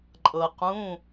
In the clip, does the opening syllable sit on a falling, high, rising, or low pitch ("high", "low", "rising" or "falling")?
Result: low